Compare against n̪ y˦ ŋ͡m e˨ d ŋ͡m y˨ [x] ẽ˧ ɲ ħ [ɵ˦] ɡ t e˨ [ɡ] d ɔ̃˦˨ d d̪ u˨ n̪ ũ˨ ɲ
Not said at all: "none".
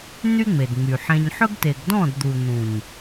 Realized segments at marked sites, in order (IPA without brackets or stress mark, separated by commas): ħ, ɵ˦, ɡ